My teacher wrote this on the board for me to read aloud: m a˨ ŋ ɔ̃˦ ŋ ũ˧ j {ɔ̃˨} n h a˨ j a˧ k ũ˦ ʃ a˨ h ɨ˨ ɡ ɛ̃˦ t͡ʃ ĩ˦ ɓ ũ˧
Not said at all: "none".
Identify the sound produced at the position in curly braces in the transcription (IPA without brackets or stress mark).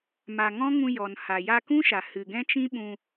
ɔ˨